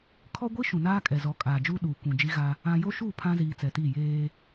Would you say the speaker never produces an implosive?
no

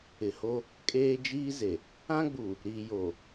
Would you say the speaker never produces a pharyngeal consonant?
yes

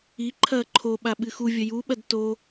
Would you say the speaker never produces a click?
no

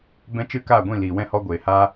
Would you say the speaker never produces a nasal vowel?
no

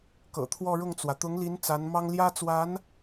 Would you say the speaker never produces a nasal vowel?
yes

